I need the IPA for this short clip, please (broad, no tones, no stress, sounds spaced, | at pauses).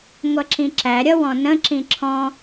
ŋʷ ʌ ǁ ĩ ǁ æ ɾʲ ʌ w ɔ̃ n ə̃ ǁ ĩ ǁʰ ɔ̃